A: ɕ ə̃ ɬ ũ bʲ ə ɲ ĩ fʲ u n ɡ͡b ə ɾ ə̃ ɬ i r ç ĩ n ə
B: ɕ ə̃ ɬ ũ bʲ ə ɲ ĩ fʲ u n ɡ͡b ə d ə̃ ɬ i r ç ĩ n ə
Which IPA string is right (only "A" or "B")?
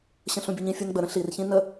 A